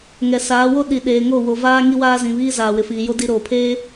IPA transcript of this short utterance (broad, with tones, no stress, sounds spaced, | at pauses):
ŋ ɛ˨ s aː˨˦ w o˦ ɗ i˨ ɗ eː˨ ŋ o˦˨ w o˨ v aː˦ ŋ i˦ w aː˦ z ĩ˨ β iː˦ z aː˨ w ɪ˨ f iː˨ j o˦ d i˦ ɾ oː˨ pʰ eː˦